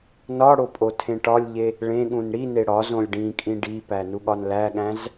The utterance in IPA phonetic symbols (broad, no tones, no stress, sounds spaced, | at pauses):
n ɒ ɽ o pʼ o tʰ ẽ ʈ ɒ lʲ ʎ e | ɭ ẽ ɠ ũ n ɽ i n e ɽ ɒ z õ lʲ ɖ ĩ kʼ ĩ ɖ i p æ n u ɠ ɒ n l æ ɠ æ̃ z